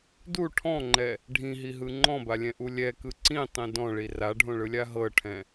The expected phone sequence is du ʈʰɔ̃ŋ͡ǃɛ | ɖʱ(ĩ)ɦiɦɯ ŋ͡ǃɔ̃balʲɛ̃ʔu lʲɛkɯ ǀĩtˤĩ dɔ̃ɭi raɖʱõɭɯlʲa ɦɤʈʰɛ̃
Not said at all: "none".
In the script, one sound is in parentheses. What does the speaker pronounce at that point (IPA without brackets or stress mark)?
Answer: ĩ